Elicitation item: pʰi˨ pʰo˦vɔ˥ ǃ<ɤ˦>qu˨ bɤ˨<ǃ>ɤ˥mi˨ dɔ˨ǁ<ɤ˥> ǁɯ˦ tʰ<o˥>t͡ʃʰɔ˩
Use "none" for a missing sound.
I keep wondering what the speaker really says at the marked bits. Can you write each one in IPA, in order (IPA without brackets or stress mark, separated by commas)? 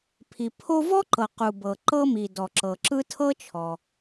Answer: ɤ˨, ǃ, ɤ˨, ɤ˥